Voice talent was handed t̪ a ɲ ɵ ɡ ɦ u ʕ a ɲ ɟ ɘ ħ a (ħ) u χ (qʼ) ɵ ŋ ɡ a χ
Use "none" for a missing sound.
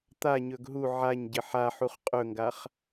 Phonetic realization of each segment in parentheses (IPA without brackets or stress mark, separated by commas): ħ, qʼ